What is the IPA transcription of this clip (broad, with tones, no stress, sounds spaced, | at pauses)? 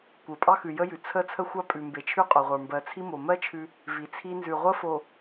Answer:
kʷ ə˞˨ pʼ ɑ˦ x ʉ˨ j ə˦ j ʉ˨ t͡sʰ ə˦ t͡sʰ ə˦ xʷ ɑ˦ pʼ ʉ˨ m b e˨ t͡ʃʰ ʉ˦ qʼ o˨ ʁʷ ə˞˨ m b ɜ˨ t͡sʰ i˦ m o˨ m ɜ˦ t͡ʃʰ ʉ˦ | v i˨ t͡sʰ i˦ n z ʉ˨ ʁʷ ə˦ f o˨